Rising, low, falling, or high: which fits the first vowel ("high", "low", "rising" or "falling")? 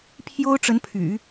high